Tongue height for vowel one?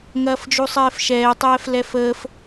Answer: low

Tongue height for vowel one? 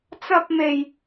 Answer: low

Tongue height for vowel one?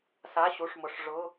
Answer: low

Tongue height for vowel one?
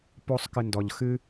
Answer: mid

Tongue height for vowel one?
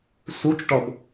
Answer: high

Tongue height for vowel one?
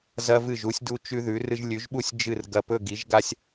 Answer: low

